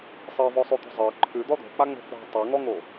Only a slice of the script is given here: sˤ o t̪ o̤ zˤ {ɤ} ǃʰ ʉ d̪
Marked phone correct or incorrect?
correct